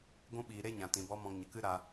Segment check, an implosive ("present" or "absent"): present